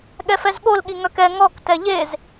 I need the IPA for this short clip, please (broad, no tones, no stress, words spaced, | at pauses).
ɠɛfɛzɠol ɠiŋœkɛ ŋɔk tɛʎez